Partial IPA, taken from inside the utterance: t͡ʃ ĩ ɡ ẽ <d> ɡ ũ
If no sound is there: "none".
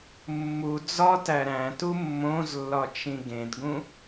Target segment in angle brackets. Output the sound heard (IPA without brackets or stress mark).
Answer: d